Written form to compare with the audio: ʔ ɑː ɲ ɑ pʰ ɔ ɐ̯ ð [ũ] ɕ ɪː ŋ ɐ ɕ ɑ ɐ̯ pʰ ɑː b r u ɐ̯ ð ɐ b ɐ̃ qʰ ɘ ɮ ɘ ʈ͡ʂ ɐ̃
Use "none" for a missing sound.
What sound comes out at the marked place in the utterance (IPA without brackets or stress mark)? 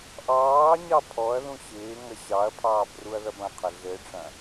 ũ